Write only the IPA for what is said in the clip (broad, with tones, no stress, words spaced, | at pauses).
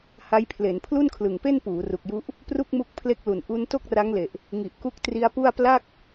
ha˦˥jpʰle˩˦n pʰlu˥˩nkʰlɯ˨˩ŋpe˥˩n puː˩˦ ru˨˩k̚ju˦˥ʔ | pru˥˩k̚mu˦˥k̚ pʰle˦˥k̚lu˨˩n ʔu˦˥n to˥˩k̚ra˦˥ŋle˨˩ʔ | ŋi˨˩ʔku˦˥k̚ tri˦˥a̯pu˥˩a̯ pla˥˩k̚